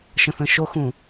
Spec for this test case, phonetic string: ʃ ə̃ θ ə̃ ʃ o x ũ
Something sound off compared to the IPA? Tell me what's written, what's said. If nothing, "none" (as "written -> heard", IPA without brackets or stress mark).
none